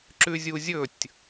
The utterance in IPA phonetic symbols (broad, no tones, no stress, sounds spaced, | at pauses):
ǁ ʉ zʲ u zʲ ɵ tʲ